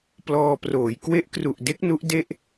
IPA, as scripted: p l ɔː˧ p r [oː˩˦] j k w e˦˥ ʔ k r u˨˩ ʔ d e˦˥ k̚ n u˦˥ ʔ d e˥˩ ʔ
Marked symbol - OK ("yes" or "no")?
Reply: yes